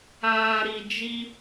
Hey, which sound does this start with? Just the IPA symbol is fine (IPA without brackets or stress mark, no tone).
aː